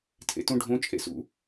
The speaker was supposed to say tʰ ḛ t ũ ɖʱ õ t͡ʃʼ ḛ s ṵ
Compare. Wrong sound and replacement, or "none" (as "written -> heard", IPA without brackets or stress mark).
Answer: none